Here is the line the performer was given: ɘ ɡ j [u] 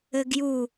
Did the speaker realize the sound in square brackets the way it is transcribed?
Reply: yes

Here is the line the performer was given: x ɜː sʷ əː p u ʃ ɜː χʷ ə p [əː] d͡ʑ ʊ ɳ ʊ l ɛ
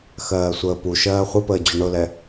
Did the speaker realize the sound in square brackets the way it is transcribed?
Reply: yes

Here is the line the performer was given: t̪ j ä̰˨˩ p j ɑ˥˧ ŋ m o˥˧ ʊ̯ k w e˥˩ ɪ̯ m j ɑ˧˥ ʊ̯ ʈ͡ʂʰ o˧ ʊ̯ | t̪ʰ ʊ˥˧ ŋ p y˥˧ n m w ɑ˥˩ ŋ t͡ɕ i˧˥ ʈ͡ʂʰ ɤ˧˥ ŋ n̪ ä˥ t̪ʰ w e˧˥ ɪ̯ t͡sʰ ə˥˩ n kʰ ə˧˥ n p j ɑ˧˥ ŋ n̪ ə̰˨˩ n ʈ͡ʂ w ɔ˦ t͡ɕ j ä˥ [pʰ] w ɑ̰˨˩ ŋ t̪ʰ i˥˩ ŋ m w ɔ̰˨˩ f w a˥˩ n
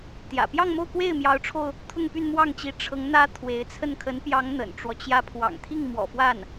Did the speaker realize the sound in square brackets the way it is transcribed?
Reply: yes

